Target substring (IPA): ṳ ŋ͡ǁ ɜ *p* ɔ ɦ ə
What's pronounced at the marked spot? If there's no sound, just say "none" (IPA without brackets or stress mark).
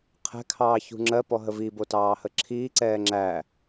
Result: p